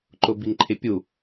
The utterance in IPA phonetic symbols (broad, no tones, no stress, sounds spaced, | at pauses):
ǃ ʊ b i ŋ ǃʰ ɪ pʲ u